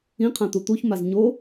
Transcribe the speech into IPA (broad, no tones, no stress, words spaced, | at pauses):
ĩqʰãt̪u t̪uçmaz ɲo